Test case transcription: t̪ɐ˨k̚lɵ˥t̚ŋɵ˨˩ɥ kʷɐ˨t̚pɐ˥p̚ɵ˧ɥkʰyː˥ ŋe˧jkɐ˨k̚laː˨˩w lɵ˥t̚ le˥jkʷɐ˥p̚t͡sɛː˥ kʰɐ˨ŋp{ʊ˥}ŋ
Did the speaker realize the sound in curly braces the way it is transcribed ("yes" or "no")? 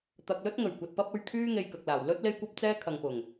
no